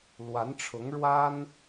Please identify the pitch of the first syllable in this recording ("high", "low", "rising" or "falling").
rising